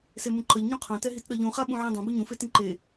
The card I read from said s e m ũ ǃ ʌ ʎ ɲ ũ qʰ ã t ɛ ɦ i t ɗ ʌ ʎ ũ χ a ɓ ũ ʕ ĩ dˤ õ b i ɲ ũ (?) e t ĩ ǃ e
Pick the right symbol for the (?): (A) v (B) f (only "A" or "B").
B